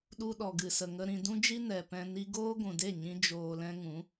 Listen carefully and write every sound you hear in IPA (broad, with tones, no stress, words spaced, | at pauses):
ɗu˧ɗɔ˨ɡɨ˨sə˨ ŋə˧ɾĩ˧ dũ˦d͡ʒi˦ nɛ˨pɛ̃˧ ni˦ ɡoː˦ɡʷũ˨de˦˨ ɲĩ˧ d͡ʒoː˧lɛ̃˦ ŋũ˨˦